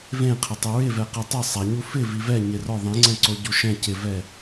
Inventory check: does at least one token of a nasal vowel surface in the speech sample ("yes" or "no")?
yes